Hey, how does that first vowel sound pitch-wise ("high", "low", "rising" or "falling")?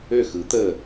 falling